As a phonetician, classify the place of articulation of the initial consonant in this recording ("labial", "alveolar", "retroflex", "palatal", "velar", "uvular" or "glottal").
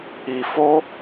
labial